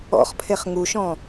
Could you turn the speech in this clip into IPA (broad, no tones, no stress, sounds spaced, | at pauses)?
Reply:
ɔ̰ χ pʰ e χ ŋ u ʃ ɔ̃